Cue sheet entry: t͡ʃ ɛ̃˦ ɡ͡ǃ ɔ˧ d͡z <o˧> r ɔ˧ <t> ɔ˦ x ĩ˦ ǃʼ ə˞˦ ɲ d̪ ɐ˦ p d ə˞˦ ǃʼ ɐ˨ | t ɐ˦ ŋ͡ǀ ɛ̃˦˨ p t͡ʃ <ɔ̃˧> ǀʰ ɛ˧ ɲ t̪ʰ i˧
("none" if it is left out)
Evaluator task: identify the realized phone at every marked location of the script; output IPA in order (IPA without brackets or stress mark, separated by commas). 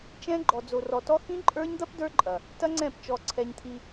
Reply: o˧, t, ɔ˧